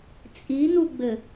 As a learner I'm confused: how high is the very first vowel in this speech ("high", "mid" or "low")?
high